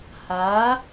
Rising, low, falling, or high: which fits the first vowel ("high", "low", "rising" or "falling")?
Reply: rising